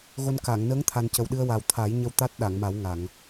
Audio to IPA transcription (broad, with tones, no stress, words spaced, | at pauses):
ɣo˧nka˨˩˨ŋ nəː˧˥ŋt̪ʰa˨˩n cə˨˩wɗɨ˧ə̯wa˨˩w t̪ʰa˨˩˦jɲə˧w t̪a˦˥t̚ɗa˨˩˨ŋma˨˩˦w ŋa˨˩˨ŋ